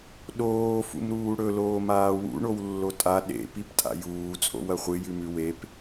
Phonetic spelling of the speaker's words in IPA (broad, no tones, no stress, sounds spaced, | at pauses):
ɗ oː f ṵ m ɾ uː ɽ ɵ l oː m aː w ṵ ɳ o w lː o tʼ a ɗ ḛ p i p tʼ a̰ j uː t͡sʼ o̰ w ɐ χʷ ɨ j ʉ m ʉ w e p